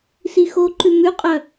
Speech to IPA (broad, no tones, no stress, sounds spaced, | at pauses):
s i x o ǃ ʉ m ʉ qʼ œ